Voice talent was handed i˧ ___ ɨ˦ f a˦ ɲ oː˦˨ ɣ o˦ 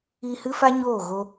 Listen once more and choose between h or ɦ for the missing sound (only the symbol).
h